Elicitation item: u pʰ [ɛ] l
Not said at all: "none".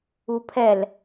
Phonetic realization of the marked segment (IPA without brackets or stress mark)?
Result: ɛ